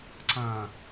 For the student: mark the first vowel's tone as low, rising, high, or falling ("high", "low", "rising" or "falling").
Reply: low